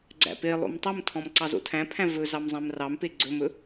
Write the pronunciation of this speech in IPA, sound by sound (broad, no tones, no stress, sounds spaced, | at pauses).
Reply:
ɡ͡ǀ æ̰ p e lˠ o̰ m tˤ ɵ m tʰ ɔ̃ m ǀ ɑ z o̰ tʰ æ̃ pʰ æ̃ v ɵ z ɑ m zˤ æ̃ m r ɑ m p e ɡ͡ǀ ɵ m ɵ